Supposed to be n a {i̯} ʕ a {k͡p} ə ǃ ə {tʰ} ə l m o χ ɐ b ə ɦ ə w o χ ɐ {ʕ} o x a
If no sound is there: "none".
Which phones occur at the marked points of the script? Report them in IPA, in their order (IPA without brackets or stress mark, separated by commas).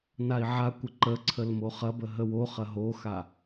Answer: i̯, kʷ, ǀʰ, ɦ